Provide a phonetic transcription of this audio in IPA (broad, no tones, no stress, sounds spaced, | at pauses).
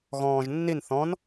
ɣ ɔ̃ː ʒ nː i n θ ɔ̃ n